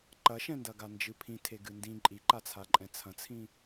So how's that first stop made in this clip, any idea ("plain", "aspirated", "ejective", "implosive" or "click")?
click